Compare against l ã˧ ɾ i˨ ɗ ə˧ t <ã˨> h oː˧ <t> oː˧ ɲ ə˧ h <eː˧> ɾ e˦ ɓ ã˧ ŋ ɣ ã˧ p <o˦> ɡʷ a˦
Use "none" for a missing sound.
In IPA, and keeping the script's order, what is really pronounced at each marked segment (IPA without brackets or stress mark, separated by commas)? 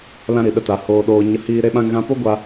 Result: a˨, ɗ, iː˧, o˦